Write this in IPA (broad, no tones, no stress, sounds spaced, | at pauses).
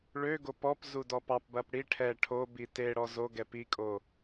ɭ ø ɡ o p ɔ p z u d ɔ p ɑ p b ɐ p ɽ i ʈʰ ɛ ʈʰ o b i t e ɽ ɔ z o ɡ ɛ p i kʼ o